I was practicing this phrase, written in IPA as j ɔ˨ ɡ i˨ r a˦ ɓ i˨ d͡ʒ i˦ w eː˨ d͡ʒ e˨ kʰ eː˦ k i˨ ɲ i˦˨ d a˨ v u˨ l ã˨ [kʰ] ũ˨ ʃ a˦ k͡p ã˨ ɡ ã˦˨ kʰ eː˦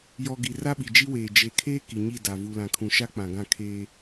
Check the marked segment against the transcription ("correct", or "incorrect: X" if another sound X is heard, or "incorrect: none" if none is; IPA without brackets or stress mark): correct